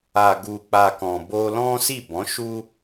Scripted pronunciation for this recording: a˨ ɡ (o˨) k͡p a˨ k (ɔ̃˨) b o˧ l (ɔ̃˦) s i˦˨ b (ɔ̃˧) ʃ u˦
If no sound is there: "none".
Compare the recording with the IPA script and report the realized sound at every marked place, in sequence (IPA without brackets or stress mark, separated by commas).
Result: u˨, ɔ̃˨, ɔ̃˦, ɔ̃˨˦